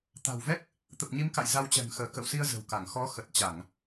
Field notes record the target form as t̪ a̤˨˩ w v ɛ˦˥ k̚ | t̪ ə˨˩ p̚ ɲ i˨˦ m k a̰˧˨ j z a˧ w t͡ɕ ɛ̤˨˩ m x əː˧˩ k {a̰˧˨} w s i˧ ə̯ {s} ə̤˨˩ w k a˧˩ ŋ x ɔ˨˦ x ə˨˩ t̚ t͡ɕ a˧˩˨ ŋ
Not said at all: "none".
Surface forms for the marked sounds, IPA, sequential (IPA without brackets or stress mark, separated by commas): ə̰˧˨, z